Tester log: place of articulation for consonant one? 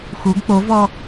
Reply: velar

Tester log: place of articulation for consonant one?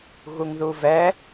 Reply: velar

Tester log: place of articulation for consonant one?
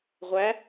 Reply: uvular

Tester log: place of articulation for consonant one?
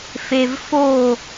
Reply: labial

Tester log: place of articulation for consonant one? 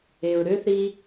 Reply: alveolar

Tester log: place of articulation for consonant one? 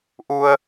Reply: glottal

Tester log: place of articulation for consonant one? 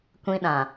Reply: velar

